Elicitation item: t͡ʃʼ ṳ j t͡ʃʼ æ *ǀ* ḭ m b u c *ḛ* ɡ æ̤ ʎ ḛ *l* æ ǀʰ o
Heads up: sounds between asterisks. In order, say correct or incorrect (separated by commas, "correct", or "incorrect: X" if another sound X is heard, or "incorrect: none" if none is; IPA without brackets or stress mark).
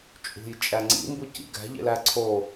incorrect: ŋ͡ǀ, incorrect: ḭ, correct